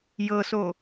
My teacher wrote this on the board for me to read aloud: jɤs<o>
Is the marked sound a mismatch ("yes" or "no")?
no